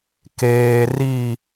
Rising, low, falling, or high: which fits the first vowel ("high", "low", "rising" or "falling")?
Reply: low